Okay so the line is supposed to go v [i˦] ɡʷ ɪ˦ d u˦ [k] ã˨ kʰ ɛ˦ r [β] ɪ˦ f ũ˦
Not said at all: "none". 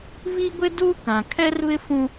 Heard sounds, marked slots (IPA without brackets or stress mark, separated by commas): i˦, k, β